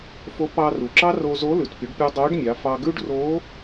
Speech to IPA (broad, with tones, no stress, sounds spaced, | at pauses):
f o˧˥ p ɑ˧ r u˩ ǁ ɑ˥ r o˧ z o˧˥ l ʉ˩ t pʲ u˩˧ ɖ pʲ u˧ dˤ o˧˥ ɖ mʲ ɑ˩˧ f ɑ˧ ɡ ʉ˥ ɖ r o˧˥